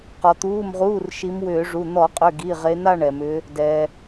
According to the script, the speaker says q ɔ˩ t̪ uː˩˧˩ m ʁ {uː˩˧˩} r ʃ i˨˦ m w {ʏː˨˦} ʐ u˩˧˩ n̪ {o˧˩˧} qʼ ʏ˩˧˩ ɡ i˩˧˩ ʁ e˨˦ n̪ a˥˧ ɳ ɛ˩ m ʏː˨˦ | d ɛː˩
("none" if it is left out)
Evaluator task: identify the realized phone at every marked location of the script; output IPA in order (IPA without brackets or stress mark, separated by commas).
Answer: uː˩˧˩, ʏː˧˩˧, ɔ˧˩˧